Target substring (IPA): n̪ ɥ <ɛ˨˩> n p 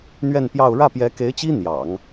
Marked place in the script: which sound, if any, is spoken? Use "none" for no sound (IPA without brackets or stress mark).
ɛ˥˧